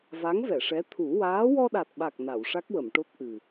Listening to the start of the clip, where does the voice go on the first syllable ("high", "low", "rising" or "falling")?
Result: rising